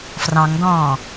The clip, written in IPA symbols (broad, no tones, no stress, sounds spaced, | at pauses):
f r ɑ̃ ŋ d ɔ̃ː